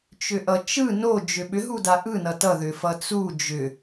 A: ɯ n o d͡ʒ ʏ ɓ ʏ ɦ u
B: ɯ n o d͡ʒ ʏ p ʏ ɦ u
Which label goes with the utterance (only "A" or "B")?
A